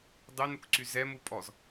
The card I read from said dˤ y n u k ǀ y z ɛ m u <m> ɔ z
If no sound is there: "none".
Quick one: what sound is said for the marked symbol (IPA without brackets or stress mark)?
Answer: pʼ